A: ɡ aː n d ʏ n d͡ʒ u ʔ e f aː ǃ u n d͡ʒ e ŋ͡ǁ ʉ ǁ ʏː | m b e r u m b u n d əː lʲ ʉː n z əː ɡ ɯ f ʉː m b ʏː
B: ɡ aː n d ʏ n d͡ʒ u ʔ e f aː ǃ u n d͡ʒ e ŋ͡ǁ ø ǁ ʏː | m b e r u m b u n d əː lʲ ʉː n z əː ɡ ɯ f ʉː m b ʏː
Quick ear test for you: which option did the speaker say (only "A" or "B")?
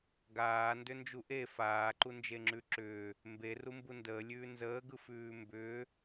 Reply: A